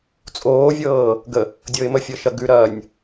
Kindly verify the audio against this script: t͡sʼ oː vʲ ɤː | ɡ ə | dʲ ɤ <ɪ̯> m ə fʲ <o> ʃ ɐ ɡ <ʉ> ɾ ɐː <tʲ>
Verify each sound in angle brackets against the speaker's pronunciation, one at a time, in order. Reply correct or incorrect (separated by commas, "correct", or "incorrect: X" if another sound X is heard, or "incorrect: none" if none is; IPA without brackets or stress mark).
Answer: correct, incorrect: ɤ, correct, incorrect: nʲ